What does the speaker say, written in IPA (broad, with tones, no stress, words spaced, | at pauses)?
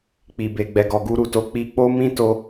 k͡pi˨be˨ ɡ͡bɛ˨ɡɔ˨ɡu˧ɾu˨ to˨˦k͡pi˧ k͡po˦ mĩ˦to˧